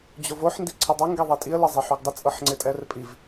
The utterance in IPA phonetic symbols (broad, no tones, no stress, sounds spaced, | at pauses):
d͡ʑ o v o ħ n d i ǀʰ ɪ dˤ o ŋ ɡ e ðˤ i tʼ i ə̯ l e zˤ e ħ o ɡ dˤ ɪ t͡sʼ ɤ ħ ŋ͡ǀ e tʼ ɛ r pʼ i v